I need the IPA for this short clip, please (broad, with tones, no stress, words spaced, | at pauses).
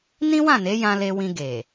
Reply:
nĩ˦wã˦˨ne˨˦ jã˧le˧wĩ˧ ɡe˨